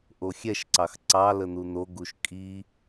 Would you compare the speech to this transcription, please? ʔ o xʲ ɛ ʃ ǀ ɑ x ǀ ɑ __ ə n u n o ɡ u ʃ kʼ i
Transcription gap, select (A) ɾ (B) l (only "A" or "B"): B